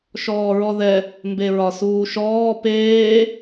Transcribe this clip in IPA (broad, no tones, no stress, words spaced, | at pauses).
ʃɔːɹɔðɛ | mbeɹɒsuːʃɔː peː